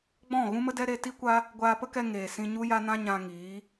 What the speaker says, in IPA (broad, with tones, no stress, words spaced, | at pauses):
ɡ͡bɔ̃˦˨ ɣũ˦mə˦dɛ˦ ɾe˧ti˦kʷa˦ | ɡʷaː˧pə˦kɛ˧ ŋeː˨ sĩ˧ɲu˦ja˦nã˦ ɲã˧ŋiː˨˦